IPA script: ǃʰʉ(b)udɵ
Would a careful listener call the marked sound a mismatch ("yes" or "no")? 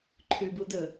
no